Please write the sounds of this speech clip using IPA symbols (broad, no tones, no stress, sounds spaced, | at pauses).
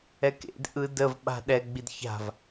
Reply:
ɛ k ḛ d ʔ ɯ d ə v ɓ a̤ ɗ ɛ ɡ͡b i d ç a̤ v